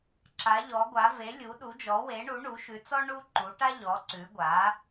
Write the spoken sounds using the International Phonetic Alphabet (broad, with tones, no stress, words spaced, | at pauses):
ǁa˩˥ʎɔ˩˥ɡʷa˩˥ ve˩˥lʲu˩˥ɗu˩˥d͡ʒɔ˩˥ we˩˥ɳu˩˥ ɳu˩˥ʃʉ˩˥t͡sɔ˥ ɳu˥ ǃu˩˥ʈa˥ʎɔ˩˥ ǀʉ˩˥ ɡʷa˩˥